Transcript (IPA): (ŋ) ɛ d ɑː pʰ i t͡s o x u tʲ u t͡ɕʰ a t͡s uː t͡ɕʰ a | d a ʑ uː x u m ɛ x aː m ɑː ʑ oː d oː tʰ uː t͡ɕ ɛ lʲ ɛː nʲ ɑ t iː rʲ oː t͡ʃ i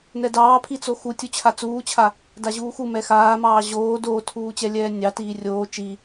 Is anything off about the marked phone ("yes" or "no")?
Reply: yes